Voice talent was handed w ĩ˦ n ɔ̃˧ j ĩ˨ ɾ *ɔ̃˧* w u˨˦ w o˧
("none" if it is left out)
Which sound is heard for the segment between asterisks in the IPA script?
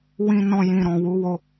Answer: ɔ̃˨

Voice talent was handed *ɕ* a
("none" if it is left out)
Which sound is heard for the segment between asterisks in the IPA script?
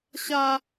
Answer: ɕ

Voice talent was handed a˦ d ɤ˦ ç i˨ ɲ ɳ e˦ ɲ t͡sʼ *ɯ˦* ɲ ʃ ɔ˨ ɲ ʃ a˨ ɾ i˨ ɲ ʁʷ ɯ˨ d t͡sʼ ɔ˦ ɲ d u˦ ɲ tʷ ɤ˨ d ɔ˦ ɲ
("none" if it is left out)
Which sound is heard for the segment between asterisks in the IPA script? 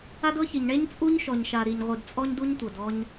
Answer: u˦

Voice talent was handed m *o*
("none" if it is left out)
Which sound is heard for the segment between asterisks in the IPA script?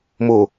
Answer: o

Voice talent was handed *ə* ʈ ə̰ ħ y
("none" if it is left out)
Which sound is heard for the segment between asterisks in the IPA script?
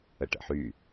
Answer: ə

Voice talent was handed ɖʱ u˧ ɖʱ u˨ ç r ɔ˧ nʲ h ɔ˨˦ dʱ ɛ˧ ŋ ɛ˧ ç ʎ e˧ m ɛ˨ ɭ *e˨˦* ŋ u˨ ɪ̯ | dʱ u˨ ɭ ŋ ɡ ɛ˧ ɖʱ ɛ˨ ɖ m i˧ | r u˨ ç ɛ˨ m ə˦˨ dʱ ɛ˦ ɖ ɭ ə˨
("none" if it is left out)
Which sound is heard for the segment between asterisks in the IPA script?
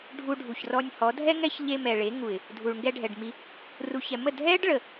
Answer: e˨˦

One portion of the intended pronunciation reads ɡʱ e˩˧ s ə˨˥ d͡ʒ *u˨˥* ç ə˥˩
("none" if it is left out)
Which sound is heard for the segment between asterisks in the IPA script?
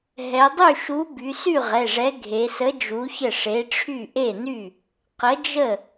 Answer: u˨˥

